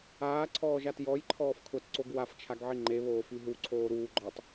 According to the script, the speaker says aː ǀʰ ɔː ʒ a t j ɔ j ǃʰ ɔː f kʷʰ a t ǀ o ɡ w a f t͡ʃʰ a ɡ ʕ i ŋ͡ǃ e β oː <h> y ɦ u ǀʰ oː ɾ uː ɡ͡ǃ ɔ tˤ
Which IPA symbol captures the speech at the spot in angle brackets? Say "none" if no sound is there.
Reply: f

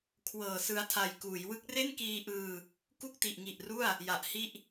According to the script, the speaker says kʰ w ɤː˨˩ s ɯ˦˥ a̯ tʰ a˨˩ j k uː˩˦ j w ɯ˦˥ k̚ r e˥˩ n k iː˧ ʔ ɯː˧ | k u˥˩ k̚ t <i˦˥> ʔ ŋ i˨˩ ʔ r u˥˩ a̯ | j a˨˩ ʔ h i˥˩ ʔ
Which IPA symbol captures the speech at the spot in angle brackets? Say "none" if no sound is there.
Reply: i˨˩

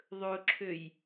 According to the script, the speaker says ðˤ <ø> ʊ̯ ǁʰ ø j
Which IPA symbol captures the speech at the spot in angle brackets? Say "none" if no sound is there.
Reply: ɵ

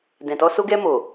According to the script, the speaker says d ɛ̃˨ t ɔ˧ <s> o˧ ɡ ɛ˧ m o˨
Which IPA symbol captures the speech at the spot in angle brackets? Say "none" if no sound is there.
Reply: s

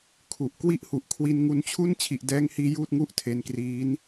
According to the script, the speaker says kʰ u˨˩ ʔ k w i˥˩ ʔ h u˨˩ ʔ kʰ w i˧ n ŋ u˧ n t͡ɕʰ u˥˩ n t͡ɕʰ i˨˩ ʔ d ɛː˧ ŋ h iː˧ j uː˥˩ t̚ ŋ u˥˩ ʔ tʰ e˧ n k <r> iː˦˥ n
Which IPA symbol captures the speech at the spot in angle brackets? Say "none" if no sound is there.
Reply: r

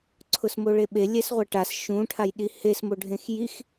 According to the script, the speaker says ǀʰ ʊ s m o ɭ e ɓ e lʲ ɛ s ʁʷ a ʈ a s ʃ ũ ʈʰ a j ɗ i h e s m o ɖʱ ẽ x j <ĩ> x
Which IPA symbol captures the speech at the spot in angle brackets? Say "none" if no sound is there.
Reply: i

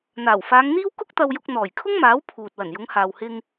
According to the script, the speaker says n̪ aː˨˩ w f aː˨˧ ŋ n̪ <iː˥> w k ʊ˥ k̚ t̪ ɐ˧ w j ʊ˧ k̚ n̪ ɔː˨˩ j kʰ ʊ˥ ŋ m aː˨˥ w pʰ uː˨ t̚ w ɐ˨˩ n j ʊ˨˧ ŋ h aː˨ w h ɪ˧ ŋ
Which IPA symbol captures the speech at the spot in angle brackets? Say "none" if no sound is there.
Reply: iː˥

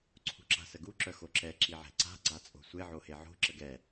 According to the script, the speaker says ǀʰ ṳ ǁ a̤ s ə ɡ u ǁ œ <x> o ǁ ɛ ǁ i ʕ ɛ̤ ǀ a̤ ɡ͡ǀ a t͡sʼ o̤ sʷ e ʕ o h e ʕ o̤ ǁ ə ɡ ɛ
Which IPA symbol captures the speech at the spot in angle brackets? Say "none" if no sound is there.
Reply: x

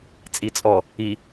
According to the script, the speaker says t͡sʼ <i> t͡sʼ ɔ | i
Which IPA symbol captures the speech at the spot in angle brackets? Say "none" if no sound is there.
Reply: i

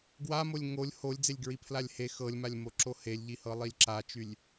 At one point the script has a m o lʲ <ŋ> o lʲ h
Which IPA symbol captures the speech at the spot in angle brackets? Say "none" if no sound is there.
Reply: ŋ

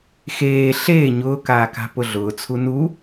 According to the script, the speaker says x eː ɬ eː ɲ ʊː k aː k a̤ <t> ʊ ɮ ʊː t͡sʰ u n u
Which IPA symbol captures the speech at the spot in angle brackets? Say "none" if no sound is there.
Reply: p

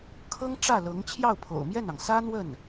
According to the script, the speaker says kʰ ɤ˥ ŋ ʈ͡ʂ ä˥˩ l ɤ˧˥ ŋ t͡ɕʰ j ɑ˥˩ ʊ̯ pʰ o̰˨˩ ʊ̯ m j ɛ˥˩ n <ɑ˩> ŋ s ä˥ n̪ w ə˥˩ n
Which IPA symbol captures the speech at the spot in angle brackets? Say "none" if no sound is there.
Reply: ɑ˩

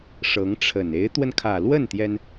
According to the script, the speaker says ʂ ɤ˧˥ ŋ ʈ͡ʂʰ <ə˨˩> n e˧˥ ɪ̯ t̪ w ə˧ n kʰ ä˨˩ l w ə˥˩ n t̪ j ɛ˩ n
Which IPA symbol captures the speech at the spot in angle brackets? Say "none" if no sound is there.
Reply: ə˨˩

